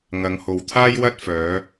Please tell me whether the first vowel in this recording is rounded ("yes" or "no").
no